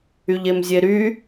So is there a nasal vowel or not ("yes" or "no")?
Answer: no